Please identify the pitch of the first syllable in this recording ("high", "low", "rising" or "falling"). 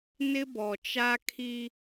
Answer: high